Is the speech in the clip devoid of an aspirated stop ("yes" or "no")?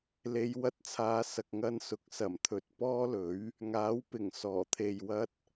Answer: no